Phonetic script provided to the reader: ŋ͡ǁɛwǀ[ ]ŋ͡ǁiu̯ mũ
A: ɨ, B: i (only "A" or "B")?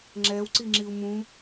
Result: B